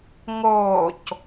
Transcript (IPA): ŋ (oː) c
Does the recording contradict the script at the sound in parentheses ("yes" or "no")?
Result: no